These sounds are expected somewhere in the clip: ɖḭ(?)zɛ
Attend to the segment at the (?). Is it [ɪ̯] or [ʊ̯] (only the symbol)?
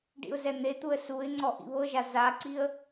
ʊ̯